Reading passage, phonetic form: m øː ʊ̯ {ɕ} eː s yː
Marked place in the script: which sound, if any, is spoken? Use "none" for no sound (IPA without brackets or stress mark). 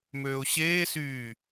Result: ɕ